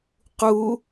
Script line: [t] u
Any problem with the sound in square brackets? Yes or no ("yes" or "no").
yes